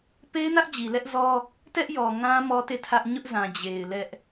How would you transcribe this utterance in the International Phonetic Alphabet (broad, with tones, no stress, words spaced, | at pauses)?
pe˦ɪ̯nä˦ʔ d͡ʑi˨lɛ˦ʔzɔ˦ | tɛ˦ʔ jɔ˨ŋã˦ mɔ˦te˦˨tʰä˦ʔ ɲʊ˦ʔzã˨ d͡ʑe˨ɪ̯ lɛ˦ʔ